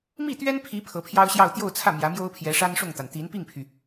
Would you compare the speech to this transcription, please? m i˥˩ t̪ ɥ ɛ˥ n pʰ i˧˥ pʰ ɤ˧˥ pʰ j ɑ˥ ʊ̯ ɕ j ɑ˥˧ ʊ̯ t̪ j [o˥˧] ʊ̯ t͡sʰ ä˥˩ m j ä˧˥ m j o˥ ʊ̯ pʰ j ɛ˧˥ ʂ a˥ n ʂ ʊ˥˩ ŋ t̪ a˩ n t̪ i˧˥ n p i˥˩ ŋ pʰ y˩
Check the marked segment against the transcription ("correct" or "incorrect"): correct